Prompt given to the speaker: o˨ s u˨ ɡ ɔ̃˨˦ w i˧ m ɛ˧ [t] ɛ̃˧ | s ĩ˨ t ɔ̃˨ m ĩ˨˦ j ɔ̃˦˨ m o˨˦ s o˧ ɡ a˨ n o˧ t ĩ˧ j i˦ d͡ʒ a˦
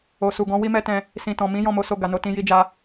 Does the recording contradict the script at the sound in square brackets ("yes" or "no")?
no